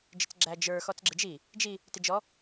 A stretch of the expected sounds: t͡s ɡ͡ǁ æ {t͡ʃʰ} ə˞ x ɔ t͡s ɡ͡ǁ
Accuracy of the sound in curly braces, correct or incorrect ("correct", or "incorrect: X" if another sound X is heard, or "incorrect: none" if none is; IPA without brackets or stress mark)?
incorrect: d͡ʒ